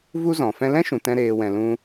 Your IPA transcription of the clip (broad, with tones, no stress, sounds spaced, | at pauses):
v u˦ z ɔ̃˨ f ɛ̃˧ l ɛ̃˦ ʃ ũ˨ t ɛ̃˦ ɾ eː˧ w ɛ̃˨ l ũ˧